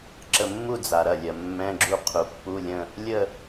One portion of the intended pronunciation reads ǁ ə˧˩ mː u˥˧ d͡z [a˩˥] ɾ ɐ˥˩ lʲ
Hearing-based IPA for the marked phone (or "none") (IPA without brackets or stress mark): a˩